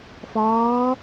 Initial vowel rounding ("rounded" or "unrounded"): rounded